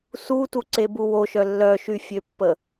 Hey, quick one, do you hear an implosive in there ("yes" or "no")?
no